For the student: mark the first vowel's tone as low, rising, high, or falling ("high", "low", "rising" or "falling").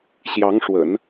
rising